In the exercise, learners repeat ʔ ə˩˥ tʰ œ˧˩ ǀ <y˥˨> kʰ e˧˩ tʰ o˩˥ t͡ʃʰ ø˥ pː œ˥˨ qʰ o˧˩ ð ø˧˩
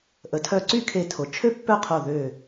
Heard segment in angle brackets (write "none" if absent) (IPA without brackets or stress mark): y˥˨